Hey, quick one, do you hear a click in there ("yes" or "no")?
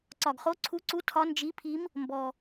yes